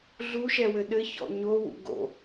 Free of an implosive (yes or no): no